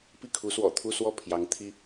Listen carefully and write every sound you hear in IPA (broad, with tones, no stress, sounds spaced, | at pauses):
p i˥˩ kʰ u˧˥ s w ɔ̰˨˩ t̪ʰ u˥˧ s w ɔ˥˩ pʰ j ɑ˧˥ ŋ t̪ʰ i˥